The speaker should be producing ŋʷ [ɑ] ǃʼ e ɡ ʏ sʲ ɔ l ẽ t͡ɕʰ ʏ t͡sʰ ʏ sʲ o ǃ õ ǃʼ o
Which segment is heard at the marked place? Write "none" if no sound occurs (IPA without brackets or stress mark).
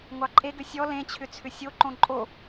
ɑ